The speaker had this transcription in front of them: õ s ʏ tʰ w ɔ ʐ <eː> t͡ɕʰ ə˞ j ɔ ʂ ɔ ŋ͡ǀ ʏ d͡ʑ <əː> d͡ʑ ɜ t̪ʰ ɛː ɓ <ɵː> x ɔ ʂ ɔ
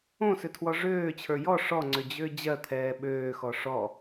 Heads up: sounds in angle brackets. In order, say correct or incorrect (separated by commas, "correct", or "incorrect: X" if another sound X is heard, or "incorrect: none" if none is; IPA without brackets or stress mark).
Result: incorrect: øː, incorrect: ʏː, incorrect: øː